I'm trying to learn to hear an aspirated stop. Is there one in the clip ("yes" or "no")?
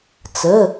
no